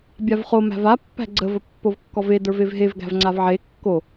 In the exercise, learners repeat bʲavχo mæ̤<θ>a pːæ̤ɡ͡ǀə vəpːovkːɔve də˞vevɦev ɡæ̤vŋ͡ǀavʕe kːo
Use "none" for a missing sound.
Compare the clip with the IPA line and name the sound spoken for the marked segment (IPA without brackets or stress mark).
v